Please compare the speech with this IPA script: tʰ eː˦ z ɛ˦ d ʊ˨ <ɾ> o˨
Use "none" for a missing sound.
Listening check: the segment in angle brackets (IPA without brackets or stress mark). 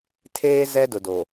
d